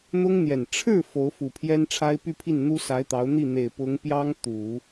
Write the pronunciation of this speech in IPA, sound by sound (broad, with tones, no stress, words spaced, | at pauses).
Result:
n̪ʊ˥ŋ n̪jɛ˨˩n ʈ͡ʂʰɻ̩˥˩ fo˧˥ʊ̯fu˨˩ pʰjɛ˥nʈ͡ʂʰa˥ɪ̯ py˥˧pʰi˥˩n n̪u˥sa˧˥ɪ̯t̪ɑ˧˥ʊ̯ n̪i˥˩n̪e˨˩ɪ̯ pʊ˧˥ŋ pjɑ˥ŋ t̪u˨˩˦